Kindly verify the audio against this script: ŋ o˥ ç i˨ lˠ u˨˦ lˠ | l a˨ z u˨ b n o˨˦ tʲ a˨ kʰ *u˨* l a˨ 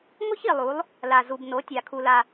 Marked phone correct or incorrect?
correct